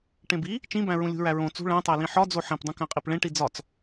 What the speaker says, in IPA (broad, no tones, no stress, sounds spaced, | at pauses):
ʈ ẽ b i | t͡ʃ ĩ b æ̃ ɹ ũ lʲ ṳ ɹ æ ɹ õ t͡s ṳ ɭ æ̃ tˤ æ l ĩ ħ ɒ d͡z o ħ ẽ p dˤ ũ k æ̃ qʼ i p ɭ ẽ ʈ i d͡z ɒ t͡s